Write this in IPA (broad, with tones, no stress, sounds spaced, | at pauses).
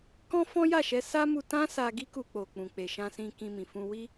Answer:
k ɔ̃˦ f ɔ̃˦ j a˦˨ ʃ ɛ˧ s a˦ m u˧ t ã˦ s a˧ ɡ i˦ k u˧ k͡p o˨ k͡p ũ˨ k͡p e˨ ʃ ã˧ s ĩ˧ k ĩ˧ m ĩ˨ f ũ˧ w i˦